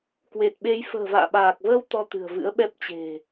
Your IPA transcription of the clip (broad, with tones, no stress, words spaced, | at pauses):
kwe˨˩t̚ɓe˨˦j fə̤ː˨˩va̰ː˧˨ɓaː˨˩k̚vəː˧w t̪ɔ˧t̪ɨ̤˨˩ə̯vɨ̰˧˥ə̯ɓɛ˦˥p̚ t͡ɕe̤˨˩